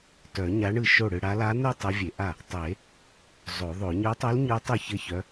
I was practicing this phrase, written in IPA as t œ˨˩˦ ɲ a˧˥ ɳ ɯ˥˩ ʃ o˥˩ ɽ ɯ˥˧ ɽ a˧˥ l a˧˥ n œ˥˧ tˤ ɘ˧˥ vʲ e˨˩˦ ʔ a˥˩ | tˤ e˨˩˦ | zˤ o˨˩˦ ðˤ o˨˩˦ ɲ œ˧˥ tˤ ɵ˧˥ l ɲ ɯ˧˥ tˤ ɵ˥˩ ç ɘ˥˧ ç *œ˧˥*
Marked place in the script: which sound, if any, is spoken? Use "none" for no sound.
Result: œ˧˥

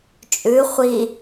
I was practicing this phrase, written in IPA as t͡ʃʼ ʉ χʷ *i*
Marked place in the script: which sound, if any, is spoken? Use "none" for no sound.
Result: i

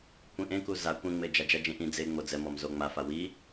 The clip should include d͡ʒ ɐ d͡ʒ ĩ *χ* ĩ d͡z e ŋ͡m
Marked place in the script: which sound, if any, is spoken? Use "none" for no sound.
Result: ʔ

